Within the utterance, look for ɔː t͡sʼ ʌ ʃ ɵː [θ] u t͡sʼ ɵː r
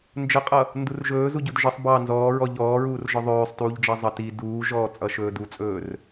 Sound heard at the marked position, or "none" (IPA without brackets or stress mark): d